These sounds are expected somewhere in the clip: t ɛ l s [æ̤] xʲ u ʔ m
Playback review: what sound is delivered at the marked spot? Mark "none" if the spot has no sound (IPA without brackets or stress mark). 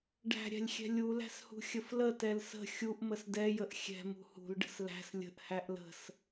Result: ə̤